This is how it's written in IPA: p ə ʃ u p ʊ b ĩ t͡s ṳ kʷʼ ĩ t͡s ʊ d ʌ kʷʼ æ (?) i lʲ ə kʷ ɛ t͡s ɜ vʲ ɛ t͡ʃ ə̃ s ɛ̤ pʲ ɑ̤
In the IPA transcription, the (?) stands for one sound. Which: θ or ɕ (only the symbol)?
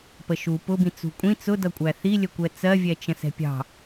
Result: θ